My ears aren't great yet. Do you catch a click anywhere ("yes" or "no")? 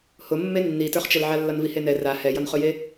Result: no